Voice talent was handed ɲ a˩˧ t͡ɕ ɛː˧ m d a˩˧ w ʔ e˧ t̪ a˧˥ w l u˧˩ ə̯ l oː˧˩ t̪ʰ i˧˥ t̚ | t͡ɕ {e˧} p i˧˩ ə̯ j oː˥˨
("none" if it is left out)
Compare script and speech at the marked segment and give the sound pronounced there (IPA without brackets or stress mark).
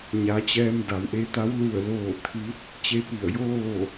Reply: e˧